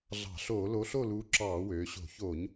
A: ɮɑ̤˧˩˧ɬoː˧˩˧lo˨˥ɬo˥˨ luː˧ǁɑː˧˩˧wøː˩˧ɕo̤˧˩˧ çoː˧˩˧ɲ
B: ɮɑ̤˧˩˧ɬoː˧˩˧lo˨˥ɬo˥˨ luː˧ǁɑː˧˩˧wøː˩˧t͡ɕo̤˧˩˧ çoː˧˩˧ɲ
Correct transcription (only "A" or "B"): A